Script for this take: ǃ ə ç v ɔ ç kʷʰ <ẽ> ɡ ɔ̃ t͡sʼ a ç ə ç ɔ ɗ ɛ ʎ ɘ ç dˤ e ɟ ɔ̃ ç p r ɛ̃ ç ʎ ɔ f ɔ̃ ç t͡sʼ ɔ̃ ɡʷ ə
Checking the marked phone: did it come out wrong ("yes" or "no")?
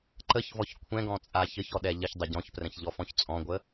yes